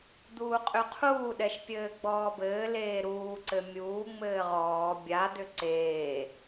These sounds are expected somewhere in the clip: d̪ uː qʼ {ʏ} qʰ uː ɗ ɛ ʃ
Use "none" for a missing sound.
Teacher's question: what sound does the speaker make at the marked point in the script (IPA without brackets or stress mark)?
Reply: ʏ